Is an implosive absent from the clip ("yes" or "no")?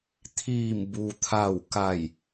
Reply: yes